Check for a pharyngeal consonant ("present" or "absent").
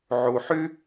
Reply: present